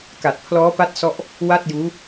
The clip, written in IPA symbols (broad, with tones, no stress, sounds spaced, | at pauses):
k a˨˩ t̚ pʰ l ɔː˦˥ p a˦˥ t̚ s ɔ˥˩ ʔ | w a˥˩ t̚ j uː˦˥